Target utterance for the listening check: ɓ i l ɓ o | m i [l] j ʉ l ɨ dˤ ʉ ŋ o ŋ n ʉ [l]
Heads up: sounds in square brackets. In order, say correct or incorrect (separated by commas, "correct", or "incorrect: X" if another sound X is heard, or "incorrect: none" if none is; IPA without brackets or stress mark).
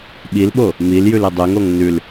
correct, correct